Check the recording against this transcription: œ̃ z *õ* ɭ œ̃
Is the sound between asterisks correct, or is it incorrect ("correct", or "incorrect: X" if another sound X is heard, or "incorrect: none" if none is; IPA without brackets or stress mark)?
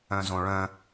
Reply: correct